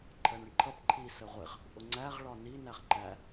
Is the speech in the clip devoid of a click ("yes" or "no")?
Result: no